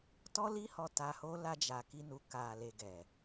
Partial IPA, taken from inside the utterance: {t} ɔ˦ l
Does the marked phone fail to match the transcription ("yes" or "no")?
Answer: no